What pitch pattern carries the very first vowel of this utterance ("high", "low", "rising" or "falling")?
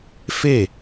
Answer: falling